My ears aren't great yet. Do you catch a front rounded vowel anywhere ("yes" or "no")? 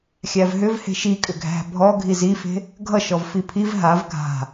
yes